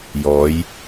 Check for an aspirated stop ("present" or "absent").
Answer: absent